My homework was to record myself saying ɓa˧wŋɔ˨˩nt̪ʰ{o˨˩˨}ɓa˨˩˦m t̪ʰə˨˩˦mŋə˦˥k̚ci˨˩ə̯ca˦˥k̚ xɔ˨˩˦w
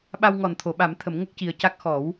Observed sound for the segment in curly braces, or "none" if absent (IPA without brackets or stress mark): o˨˩˨